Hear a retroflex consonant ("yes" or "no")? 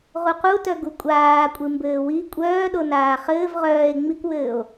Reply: no